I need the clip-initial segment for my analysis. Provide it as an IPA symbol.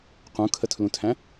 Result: q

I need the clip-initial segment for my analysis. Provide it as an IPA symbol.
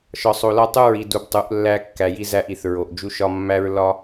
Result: ʃ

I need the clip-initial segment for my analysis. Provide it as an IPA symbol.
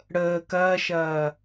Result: ɽ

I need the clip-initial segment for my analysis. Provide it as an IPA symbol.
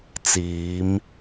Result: t͡s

